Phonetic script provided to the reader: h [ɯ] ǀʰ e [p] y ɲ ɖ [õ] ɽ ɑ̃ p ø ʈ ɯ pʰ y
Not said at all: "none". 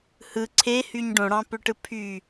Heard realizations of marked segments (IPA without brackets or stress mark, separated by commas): ɯ, h, õ